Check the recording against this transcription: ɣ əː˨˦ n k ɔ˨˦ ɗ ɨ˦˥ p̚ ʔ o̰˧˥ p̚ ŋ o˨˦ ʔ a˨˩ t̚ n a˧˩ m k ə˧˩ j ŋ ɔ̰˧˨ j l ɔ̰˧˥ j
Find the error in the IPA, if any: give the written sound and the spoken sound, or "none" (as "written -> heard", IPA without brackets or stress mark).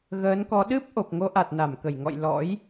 o̰˧˥ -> o˨˩